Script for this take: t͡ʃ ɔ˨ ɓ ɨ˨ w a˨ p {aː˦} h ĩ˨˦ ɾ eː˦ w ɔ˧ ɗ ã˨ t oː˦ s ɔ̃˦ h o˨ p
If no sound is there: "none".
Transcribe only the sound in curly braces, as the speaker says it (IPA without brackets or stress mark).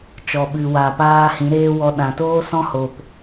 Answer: aː˦